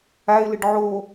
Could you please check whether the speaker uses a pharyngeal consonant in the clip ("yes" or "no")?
yes